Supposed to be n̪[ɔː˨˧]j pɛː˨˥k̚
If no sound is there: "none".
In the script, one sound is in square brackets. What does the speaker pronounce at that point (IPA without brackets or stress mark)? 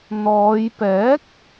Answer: ɔː˨˧